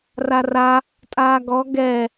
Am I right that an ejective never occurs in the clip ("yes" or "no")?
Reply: no